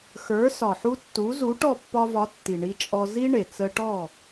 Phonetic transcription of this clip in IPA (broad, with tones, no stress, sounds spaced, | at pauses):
x ə˞˩˥ s ɒ˩ ħ u˧ tː u˩˥ z u˩˥ ʈ ɔ˥˩ pː ɒ˧ v ɒ˩˥ tː i˩ ɳ i˧ t͡ʃʼ ɔ˧ z i˥ ɳ e˩ t͡s ə˧ ʈ ɔ˥˩